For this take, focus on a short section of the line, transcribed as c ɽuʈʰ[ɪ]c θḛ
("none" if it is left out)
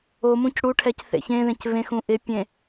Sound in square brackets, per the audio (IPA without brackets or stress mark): ɛ